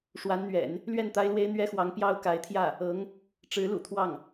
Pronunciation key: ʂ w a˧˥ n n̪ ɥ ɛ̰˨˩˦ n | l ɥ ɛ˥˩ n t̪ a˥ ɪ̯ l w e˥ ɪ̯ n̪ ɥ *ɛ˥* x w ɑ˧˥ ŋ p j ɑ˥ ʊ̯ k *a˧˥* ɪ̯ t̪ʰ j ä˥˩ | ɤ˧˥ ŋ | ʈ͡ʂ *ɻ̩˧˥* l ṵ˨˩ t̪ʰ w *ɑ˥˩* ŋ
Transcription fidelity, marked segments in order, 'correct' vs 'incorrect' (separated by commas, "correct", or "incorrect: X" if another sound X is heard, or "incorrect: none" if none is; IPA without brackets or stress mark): correct, correct, correct, correct